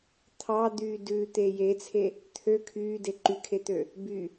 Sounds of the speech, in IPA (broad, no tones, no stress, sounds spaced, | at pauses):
t̪ʰ ɑ d̪ yː d ʉ t̪ e j e t͡sʰ e | t̪ʰ ø kʰ yː d e ǃ y kʰ e t̪ ø | b y